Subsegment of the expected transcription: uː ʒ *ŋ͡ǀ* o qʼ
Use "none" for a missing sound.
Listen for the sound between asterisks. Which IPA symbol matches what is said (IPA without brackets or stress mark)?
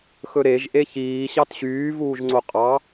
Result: ŋ͡ǀ